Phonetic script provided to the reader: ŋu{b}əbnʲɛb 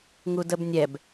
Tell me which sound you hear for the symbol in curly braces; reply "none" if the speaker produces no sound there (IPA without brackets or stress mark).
d